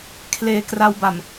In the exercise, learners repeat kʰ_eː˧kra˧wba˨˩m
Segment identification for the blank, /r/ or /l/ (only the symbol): l